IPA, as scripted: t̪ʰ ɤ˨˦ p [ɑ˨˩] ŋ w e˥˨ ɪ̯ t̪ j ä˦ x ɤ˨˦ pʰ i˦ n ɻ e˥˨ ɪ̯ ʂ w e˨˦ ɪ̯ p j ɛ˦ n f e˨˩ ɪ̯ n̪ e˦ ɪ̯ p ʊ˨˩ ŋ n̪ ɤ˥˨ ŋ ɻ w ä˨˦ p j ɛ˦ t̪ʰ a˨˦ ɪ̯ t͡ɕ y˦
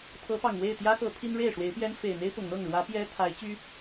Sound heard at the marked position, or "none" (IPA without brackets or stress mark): ɑ˨˩